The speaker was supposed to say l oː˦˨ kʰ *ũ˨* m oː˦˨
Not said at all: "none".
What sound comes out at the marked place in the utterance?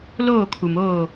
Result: u˨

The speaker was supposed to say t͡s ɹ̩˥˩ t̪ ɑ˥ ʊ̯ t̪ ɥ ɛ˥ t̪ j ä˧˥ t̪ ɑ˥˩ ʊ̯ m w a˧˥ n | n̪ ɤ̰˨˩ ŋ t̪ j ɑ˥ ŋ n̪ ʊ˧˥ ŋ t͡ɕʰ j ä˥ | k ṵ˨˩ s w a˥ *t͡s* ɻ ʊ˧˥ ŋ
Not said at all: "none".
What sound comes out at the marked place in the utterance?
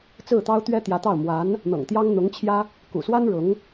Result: n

